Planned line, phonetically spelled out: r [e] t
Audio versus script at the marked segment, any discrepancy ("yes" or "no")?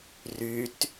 yes